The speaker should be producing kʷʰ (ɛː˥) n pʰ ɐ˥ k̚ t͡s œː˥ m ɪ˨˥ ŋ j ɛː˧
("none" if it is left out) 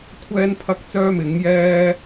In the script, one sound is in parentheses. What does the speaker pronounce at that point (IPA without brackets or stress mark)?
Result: ɛː˥